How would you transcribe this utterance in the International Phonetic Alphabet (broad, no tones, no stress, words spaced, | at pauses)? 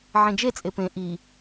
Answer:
ʕẽd͡ʒet͡sʼe pẽ ʔi